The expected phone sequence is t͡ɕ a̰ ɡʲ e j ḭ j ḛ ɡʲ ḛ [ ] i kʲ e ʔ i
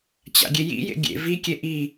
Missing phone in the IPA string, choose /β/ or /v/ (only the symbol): v